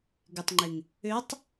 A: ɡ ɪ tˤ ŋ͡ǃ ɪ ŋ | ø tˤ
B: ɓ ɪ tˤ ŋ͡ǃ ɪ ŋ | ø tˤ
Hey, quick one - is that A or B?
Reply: A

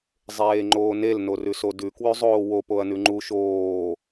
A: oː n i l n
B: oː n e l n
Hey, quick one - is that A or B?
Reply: B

